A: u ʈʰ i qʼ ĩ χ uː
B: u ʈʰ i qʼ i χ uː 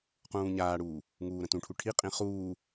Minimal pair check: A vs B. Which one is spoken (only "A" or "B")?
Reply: A